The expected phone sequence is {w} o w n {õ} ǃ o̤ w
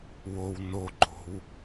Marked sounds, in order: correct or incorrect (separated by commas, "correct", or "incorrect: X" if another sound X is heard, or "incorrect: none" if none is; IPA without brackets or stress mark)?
correct, incorrect: o